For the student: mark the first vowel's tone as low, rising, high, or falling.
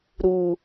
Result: high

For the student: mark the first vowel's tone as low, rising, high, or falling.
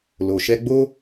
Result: low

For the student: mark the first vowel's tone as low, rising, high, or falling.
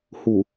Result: low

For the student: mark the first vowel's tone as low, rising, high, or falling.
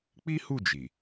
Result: high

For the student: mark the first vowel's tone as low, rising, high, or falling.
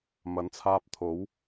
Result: rising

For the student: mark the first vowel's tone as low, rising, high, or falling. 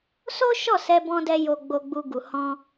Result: high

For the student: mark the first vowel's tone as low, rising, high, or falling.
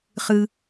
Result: high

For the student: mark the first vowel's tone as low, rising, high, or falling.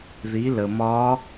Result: rising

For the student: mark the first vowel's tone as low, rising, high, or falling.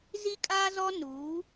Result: high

